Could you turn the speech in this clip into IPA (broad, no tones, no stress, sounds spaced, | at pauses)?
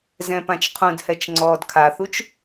z ɛ̃ p ã t͡ʃ qʰ ũ d h ɛ t͡ʃ ŋ͡ǀ ɔː d kʰ a θ u t͡ʃ